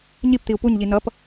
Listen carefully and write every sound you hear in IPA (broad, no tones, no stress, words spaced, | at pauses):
ɲipt̪iu̯ puɲʎi nʌp